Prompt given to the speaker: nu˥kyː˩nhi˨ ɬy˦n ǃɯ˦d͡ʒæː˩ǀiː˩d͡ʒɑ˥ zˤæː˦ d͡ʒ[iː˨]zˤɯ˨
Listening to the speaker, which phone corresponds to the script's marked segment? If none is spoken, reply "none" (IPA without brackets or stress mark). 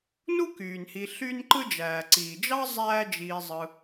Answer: iː˨